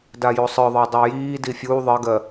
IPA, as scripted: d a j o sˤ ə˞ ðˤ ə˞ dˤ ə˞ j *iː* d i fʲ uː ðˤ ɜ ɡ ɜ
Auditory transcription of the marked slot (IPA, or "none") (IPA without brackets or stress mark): iː